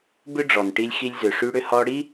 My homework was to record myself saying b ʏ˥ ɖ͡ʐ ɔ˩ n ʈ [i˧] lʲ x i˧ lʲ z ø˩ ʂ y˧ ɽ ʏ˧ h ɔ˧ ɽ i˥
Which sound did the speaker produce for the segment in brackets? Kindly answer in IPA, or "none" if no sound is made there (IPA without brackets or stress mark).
i˧